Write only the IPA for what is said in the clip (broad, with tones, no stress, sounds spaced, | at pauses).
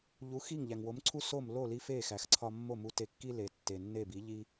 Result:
ʎ u˩˥ x i˥˩ ŋ ʎ æ˩ ŋ w o˩˥ m ǀʰ u˥ s o˥˩ m l o˥˩ l i˧ f e˥˩ x æ˩ x ǀʰ ɒ˧ mː o˥˩ m u˧ t e˧ kː i˥ l e˩ tː e˩ nː e˥˩ b i˩˥ ʎ i˥